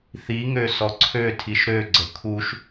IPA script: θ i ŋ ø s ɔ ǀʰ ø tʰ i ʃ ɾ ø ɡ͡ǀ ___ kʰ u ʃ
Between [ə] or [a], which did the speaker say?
ə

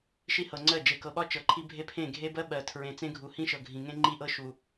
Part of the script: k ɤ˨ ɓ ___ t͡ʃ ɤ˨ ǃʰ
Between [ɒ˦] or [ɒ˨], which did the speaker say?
ɒ˦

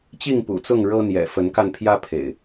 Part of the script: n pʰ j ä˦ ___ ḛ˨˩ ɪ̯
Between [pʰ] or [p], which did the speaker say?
pʰ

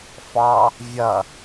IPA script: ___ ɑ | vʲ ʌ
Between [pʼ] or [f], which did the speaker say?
f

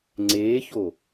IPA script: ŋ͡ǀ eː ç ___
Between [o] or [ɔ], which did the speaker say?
o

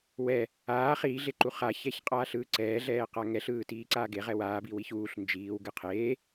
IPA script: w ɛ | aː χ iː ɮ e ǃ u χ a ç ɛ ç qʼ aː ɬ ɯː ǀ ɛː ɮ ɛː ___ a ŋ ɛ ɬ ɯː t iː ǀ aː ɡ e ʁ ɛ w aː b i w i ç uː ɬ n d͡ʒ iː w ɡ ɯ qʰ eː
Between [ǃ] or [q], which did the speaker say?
q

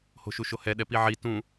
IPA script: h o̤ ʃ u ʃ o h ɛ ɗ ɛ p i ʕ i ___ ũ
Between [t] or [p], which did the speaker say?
t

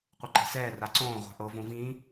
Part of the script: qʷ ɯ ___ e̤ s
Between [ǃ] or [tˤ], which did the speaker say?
ǃ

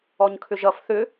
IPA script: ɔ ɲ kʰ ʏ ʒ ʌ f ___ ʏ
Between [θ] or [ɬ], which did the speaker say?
θ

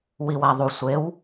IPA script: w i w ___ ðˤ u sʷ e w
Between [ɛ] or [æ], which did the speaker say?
æ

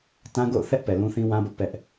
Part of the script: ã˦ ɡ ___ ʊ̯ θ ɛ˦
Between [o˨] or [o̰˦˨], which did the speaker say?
o̰˦˨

